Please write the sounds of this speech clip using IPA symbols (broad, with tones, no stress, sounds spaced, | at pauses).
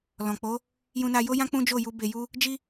l ɔ̃˨ k͡p o˨˦ | j ũ˧ n a˧ j o˦ j ã˦ k͡p ũ˦ d͡ʒ o˦˨ j u˧ b e˨ j u˧ | d͡ʒ i˦